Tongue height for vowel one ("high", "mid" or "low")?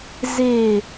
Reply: mid